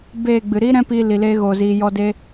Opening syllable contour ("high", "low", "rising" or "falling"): falling